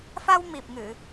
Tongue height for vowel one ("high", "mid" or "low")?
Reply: low